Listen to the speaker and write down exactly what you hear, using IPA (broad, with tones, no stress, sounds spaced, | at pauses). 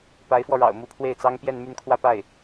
p a˧˥ ɪ̯ f w ɔ˧ ɻ ɑ̰˨˩ ʊ̯ m u˧˥ pʰ w e˥˩ ɪ̯ t͡s ɑ˥ ŋ p j ɛ˥˧ n m y˥˧ n kʰ w ä˥˧ p a˥˩ ɪ̯